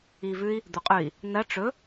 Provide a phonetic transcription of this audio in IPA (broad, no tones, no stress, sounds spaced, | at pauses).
i v ʉ i̯ | d̪ u qʼ ʉ i̯ | n ɐ ʈ͡ʂ ɵ